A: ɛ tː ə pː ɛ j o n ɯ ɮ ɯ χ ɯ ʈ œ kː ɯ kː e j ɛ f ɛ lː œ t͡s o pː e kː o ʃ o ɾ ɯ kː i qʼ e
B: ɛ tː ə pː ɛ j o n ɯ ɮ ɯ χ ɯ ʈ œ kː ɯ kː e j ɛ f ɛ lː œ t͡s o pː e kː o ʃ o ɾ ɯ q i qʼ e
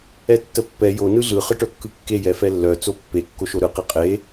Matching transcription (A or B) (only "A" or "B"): B